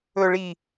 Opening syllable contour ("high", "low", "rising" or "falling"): low